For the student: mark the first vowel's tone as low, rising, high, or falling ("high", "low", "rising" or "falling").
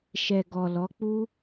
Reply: low